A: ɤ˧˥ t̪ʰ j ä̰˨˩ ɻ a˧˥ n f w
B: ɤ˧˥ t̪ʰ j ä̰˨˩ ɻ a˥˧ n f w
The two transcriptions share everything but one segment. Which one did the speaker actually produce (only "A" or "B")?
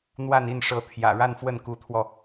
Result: B